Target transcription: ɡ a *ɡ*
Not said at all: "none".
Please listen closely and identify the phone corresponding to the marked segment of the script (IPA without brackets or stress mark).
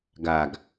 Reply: ɡ